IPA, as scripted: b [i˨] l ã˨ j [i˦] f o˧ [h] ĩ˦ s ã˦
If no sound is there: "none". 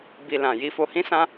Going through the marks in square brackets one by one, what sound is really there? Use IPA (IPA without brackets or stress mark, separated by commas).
i˨, i˧, h